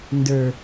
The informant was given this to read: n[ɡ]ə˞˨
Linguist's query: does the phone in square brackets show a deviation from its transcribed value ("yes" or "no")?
yes